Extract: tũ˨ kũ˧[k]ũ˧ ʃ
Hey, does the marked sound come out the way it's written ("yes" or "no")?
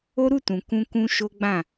yes